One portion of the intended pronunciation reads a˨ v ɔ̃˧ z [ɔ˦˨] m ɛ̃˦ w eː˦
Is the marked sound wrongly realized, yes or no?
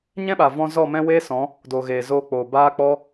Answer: no